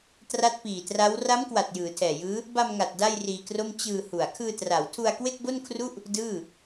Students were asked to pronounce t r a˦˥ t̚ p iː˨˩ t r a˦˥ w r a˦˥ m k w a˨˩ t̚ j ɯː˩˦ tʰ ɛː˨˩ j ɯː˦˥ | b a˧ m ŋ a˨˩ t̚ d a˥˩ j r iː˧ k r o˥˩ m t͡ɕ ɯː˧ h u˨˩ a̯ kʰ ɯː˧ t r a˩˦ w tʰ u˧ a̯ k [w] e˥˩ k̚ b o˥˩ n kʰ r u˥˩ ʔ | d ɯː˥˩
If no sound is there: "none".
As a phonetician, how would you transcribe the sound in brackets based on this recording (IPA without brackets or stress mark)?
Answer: w